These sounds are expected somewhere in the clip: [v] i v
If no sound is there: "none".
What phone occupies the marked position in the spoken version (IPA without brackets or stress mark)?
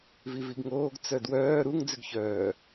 v